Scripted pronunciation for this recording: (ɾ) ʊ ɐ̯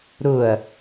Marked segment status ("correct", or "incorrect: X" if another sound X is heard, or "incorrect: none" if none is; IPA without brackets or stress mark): correct